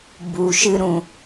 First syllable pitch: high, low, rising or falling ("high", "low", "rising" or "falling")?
low